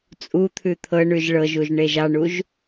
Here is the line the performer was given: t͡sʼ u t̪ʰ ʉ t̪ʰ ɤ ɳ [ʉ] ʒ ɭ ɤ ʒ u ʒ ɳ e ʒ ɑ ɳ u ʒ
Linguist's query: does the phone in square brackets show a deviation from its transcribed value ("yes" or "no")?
no